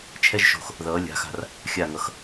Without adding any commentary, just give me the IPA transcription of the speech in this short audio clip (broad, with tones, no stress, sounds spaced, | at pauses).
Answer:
t͡ʃʰ ɛ˥ ʒ ʃ o̤˧˩ x | ð ʌː˩˧ lʲ a̤˩˧ x a̤˧˩ r | xʲ a˧˩ ŋ ʌ˩˧ x